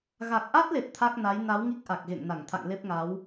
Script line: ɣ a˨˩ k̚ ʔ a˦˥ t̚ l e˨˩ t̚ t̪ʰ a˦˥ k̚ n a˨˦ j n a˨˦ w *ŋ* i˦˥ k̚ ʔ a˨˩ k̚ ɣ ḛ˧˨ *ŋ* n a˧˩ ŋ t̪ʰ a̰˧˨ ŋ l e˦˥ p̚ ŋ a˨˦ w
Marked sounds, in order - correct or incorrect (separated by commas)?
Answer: correct, correct